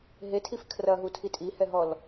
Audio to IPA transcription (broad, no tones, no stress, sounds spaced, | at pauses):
ɦ e tʰ i f kʰ r ɐ ɦ u tʰ i tʼ i h ɛ ɦ ɔ l